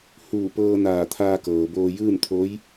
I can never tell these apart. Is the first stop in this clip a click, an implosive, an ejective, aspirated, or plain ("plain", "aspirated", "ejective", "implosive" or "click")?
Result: plain